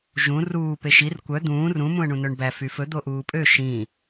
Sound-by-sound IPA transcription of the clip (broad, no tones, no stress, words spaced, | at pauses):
ʒũ ruː peʃir kʷœ d̪ũː rũ mũə̯ɳũnœɳbæ fyfɵ d̪oʔuːpʼø ʃĩ